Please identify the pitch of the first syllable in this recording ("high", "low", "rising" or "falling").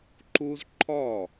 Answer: high